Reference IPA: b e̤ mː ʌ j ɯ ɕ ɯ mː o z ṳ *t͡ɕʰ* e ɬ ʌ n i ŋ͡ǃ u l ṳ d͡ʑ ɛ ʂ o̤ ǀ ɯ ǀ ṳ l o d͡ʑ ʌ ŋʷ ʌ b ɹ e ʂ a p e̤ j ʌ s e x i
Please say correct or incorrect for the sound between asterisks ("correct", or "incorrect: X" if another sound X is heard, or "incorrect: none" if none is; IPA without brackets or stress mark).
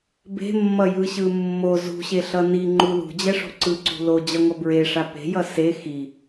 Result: incorrect: ɕ